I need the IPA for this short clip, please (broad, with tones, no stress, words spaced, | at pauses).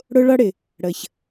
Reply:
ɽʊ˦ɭʌ˦ɽɪ˨ | ɽə˨ç